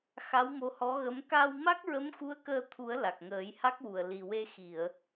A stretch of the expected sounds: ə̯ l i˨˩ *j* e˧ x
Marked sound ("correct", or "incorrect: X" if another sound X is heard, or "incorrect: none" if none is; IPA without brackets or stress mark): incorrect: w